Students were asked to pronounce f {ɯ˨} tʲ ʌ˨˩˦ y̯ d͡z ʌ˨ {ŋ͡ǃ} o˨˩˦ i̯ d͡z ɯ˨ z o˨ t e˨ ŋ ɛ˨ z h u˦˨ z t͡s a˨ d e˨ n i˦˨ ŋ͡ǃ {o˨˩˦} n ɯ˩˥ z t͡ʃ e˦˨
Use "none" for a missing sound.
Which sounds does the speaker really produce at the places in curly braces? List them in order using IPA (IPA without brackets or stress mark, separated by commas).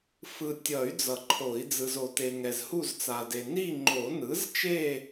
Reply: ɯ˨, ǃʰ, o˨˩˦